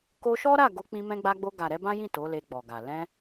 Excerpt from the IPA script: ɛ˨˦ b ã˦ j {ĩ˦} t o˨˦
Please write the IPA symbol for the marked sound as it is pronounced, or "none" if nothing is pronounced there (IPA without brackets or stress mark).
ĩ˦˨